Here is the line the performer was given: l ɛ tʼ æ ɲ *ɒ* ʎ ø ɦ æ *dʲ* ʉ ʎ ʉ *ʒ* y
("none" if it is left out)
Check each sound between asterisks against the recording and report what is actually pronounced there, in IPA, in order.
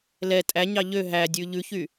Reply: ɑ, dʲ, ç

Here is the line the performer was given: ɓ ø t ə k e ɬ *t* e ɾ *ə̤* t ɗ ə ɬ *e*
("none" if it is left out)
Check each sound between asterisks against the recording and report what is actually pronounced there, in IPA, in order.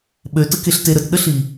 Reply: t, ə, i

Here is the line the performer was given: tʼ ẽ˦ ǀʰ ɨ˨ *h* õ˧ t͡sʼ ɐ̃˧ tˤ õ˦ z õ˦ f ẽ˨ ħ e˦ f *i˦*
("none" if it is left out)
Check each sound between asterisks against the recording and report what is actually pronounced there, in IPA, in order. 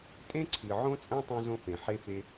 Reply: ʕ, e˦

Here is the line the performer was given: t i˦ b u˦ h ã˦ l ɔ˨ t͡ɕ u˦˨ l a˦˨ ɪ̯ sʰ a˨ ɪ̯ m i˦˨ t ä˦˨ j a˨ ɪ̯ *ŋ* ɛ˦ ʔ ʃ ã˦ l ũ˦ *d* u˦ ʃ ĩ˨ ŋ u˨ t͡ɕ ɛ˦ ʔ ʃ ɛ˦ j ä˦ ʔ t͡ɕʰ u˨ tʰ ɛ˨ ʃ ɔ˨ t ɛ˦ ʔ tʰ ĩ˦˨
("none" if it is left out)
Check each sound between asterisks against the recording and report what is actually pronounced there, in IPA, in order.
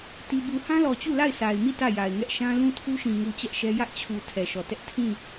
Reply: ŋ, tʰ

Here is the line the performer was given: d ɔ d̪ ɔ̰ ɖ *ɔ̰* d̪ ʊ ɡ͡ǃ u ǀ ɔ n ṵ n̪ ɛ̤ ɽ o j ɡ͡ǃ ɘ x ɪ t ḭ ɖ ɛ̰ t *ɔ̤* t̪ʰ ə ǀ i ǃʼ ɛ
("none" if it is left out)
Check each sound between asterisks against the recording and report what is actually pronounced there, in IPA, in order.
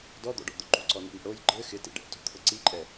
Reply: ɔ̰, o̤

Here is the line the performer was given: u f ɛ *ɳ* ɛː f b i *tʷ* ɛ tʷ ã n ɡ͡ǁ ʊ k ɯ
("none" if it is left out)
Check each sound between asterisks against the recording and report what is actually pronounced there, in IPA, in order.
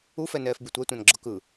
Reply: n, tʷ

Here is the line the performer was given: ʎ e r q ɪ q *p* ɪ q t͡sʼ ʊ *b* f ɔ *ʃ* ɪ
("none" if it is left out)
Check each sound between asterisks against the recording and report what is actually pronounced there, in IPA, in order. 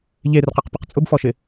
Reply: p, b, ʃ

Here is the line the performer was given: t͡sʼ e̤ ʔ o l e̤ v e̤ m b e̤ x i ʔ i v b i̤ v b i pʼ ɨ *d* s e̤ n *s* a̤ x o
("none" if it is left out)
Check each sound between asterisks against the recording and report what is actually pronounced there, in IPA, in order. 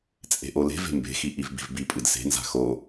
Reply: d, z

